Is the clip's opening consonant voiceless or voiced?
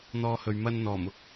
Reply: voiced